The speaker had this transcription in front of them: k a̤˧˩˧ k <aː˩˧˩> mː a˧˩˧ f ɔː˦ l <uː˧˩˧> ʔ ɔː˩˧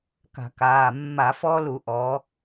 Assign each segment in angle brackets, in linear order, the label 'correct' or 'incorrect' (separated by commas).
correct, incorrect